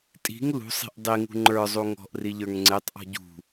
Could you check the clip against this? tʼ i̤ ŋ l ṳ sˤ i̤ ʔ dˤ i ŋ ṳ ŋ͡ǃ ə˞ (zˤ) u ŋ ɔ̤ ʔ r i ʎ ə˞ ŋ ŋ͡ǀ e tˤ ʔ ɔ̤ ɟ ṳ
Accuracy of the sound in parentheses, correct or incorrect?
correct